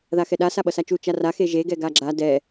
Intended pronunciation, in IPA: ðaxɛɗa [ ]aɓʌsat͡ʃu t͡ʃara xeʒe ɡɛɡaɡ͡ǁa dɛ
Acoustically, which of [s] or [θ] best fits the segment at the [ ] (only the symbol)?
s